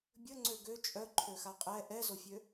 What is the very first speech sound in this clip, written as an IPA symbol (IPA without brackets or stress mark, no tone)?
bʲ